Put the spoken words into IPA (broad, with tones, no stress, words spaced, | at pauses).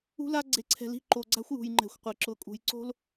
ṳ˦la˦ ɡ͡ǀe˨ǀʰɛ̤˨li̤˦˨ ǃo˨ɡ͡ǀa̤˦xʷjṳ˨jŋ͡ǃɛ̤˨xʷ qʷe˨ ǁʊ˨kʼṳ˨jǀo̤˦l